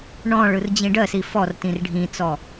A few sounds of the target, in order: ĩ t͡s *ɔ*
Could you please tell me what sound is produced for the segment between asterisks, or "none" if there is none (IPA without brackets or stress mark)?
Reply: ɔ